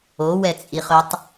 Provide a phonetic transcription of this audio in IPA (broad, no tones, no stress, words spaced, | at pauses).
owɛt͡sʼiχɵtˤ